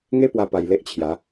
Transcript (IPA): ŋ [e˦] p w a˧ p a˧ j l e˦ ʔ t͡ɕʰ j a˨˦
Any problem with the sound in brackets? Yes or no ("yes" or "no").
no